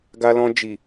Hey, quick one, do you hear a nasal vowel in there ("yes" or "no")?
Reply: yes